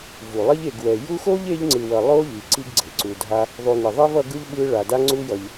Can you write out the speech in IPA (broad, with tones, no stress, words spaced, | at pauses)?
vu˩lˠi˦ʎe˨ɡwɛ˨ ju˦xo˥ʎe˦ʎ ŋ͡ǀɯ˨wʌ˨ lˠo˦ ʎi˨ ǀi˥ɡɡ͡ǀe˩ ǀu˨dʱa˦ | ðˤu˨ni˩ðˤe˥vʌ˦ ɡɯ˥ʎɓɯ˦ ɭa˩da˦ ŋ͡ǀu˦jʌ˨ʎ